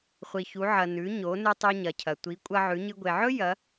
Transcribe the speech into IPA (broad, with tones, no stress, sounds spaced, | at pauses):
χʷ i˩ ç u˩˧ ʕ ɐ˩ n ʉ˩˧ ɲ o˩˧ n ʉ˧ tˤ u˧ ɲ ɐ˩ cʰ ɐ˩ tʷ i˩˧ kʷʼ ɐ˧ ʕ ʉ˩˧ ɲ ɨ˧ ɡʷ e˩ ʕ ɵ˥ j ɐ˩˧